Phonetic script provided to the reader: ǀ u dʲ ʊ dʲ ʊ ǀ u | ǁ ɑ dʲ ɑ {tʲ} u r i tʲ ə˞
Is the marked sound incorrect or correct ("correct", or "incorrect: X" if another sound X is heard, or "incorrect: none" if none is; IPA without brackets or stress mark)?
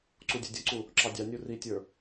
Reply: incorrect: nʲ